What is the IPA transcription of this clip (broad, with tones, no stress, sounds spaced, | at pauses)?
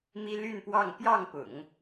m i˥ l y˥˧ n p w ɑ˥˧ ŋ p j ɑ˥˩ ŋ p ʊ̰˨˩˦ ŋ